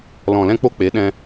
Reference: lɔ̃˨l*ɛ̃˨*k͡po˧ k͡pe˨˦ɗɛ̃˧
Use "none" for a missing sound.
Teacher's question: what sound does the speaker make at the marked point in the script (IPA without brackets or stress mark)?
ɛ̃˧